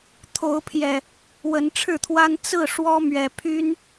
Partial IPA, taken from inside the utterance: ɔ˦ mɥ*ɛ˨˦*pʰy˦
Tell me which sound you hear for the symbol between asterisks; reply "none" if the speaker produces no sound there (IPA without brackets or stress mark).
ɛ˨˩